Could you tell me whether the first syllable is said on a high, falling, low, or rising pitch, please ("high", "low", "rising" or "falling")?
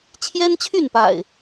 high